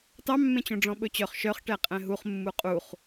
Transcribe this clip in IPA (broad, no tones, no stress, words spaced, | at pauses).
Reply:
tɑmːẽt͡ɕõɖ͡ʐɔ̃ ɓɵt͡ɕœχ ʃœχ ʈɛqʼɛ̃ɦuχ mːuqʼuχ